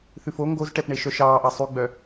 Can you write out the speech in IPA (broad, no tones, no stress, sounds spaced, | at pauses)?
θ ʉ f o ŋ ɡ o z ʈ ɛ p ɳ e ʃ œ ʃ ɑː ʔ ɑ sˤ ʉ ɡ͡b œ